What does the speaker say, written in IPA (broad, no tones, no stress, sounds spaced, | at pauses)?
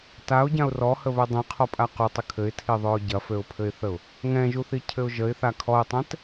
t a ʊ̯ ɟ ã ʊ̯ r ɔ h ə β ʏ dˤ ĩ qʰ ɔ pʼ a q u tˤ ʏ kʰ ɘ ɪ̯ tʰ i ðˤ ø ʊ̯ ɟ ɐ f ø ʊ̯ pʰ ɘ ɪ̯ θ ə ʊ̯ | ŋ ɛ̃ ʒ u θ i cʰ ɘ ʊ̯ ʒ ə ɪ̯ θ a kʰ ɔ ɪ̯ tˤ ɛ̃ t